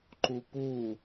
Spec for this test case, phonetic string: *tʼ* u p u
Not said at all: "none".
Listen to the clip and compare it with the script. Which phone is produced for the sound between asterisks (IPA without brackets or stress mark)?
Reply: ǃ